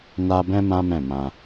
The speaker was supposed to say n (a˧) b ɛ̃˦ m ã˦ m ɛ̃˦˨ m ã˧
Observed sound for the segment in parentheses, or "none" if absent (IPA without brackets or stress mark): a˦